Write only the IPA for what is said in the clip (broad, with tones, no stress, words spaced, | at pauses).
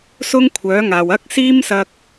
sʊ˥ŋkʷʰœː˨˥ŋaː˨w ɐ˥k̚siː˥m sɐ˥k̚